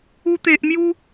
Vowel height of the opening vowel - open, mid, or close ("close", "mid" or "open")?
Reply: close